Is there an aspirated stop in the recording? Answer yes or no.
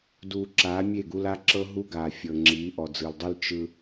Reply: no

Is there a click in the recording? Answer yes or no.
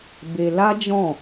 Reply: no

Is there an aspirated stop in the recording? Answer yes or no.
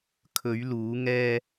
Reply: yes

